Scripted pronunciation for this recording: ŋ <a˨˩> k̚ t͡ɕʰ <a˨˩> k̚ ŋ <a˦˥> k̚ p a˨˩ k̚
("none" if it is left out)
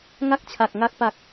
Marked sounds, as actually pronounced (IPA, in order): a˥˩, a˨˩, a˦˥

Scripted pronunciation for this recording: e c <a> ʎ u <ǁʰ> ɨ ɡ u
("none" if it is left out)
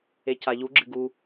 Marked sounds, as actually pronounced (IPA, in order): a, ɡ͡ǁ

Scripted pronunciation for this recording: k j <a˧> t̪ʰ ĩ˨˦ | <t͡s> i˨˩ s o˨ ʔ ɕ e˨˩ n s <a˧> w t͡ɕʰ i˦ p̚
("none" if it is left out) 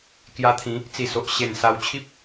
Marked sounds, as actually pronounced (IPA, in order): a˧, t͡s, a˧

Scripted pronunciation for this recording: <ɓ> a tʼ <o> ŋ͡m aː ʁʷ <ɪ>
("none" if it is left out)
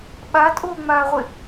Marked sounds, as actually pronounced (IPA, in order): ɓ, o, ɪ

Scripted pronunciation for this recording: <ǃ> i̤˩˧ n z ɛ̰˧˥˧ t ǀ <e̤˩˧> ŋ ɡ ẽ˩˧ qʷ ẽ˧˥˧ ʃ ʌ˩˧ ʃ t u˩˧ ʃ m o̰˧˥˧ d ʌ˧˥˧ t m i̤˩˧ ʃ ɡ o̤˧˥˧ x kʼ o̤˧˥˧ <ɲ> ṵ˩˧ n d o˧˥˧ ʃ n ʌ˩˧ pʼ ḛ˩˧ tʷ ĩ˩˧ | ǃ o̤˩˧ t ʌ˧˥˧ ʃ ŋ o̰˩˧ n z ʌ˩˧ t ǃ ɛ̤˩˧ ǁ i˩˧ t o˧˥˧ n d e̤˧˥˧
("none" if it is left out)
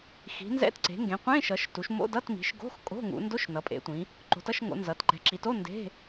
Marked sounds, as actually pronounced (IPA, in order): x, e̤˩˧, ŋ

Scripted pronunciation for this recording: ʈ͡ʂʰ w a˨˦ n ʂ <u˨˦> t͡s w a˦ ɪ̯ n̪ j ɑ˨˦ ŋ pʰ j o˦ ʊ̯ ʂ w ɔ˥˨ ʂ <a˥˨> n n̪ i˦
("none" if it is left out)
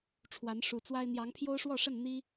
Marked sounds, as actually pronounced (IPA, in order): u˨˩, ə˥˨

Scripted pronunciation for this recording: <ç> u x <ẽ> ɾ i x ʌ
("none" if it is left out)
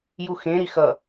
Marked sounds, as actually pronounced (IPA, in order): j, ẽ

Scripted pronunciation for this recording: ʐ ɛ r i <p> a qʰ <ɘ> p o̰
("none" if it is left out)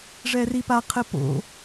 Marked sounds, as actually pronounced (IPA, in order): p, ɘ

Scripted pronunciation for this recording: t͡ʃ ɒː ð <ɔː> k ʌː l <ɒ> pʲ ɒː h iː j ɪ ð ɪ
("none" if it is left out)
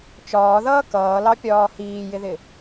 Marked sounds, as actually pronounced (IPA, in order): ʌː, ɑ

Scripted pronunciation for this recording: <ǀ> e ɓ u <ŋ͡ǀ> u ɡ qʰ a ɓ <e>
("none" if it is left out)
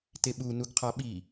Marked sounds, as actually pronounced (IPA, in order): t, n, i

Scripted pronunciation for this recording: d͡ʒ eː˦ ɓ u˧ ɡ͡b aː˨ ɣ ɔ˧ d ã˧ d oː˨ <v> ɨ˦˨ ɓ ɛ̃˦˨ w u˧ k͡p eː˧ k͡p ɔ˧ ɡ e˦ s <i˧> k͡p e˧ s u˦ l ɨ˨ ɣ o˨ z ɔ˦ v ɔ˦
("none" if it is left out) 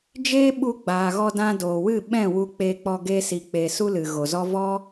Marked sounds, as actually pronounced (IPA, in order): w, i˧

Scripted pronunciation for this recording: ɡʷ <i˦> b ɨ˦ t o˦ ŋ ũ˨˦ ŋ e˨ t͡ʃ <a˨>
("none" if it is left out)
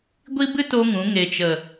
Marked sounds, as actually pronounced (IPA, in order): i˦, ə˨

